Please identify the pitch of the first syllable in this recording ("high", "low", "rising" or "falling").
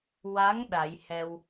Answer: rising